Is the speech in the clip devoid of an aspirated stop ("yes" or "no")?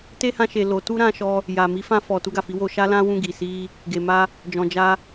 yes